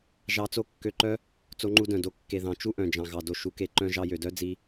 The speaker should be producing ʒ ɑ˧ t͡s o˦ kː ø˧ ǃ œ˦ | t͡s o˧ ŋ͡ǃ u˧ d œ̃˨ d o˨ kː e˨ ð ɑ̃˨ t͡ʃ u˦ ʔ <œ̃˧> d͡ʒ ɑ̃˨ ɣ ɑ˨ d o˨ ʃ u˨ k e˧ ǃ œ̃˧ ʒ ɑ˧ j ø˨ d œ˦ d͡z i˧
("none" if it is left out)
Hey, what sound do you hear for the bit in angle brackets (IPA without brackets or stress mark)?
œ̃˨